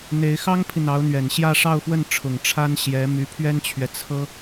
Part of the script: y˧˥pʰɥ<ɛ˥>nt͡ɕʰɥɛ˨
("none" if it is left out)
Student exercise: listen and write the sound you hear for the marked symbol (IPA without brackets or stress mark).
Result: ɛ˥